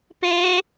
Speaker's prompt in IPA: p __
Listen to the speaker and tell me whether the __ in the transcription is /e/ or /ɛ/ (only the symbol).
e